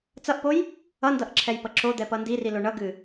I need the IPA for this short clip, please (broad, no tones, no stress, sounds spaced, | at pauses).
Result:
t͡s ʌ ʔ p o j | ʌ n d ʌ ʔ ǁʰ ɛ j p ʌ ǁ o d̪ ɛ p ʌ n d i r i l o ɳ ʌ ɡ ɨ